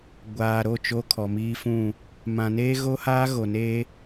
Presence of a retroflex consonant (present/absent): absent